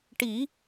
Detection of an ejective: absent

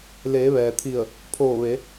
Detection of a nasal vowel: absent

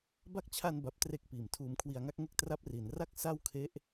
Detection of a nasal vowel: absent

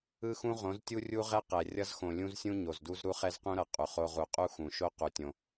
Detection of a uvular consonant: present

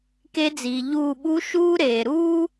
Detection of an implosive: present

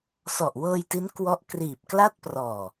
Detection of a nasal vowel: absent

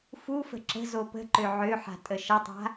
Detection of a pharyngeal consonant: present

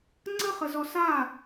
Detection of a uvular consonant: present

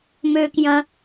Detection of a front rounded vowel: present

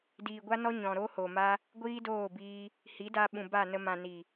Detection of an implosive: present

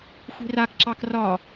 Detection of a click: present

